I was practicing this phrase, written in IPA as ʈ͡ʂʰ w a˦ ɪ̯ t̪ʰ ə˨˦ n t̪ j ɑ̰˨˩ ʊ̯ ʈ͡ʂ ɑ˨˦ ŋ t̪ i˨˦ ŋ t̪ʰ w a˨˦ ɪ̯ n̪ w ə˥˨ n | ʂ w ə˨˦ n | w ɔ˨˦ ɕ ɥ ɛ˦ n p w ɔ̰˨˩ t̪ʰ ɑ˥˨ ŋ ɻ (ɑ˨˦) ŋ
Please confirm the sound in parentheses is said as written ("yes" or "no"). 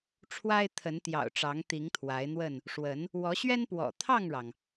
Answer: no